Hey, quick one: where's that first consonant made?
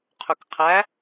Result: uvula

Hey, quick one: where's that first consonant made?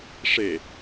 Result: retroflex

